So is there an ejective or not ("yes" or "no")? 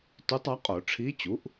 yes